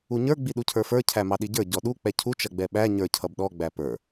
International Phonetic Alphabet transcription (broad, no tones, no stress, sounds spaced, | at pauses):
u ɲ ə˞ ɡ͡b i ɗ u cʰ ə˞ f ə˞ cʰ æ m ɑ ɗ i ɟ ə˞ ɟ ɔ ɗ u k͡p ɛ cʰ u t͡ʃ ʌ ɡ͡b ɛ ɓ æ ɲ ə˞ cʰ ʌ b ɗ ɔ ɡ͡b æ p ə˞